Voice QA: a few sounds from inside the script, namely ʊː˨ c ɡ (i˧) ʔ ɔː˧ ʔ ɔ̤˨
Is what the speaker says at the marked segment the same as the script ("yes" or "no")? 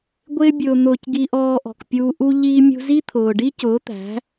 yes